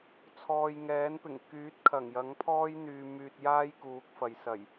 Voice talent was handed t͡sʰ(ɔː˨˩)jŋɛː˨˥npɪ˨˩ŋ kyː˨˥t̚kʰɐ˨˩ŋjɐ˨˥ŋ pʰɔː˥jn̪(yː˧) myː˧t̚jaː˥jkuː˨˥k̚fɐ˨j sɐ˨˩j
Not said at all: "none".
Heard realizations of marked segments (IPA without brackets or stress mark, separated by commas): ɔː˨, yː˧